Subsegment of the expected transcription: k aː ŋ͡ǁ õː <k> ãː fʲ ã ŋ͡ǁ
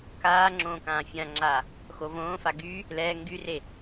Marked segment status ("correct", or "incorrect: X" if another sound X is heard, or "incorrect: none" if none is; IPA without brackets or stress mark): correct